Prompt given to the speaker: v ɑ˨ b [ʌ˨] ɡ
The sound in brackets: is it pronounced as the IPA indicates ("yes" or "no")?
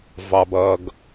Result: yes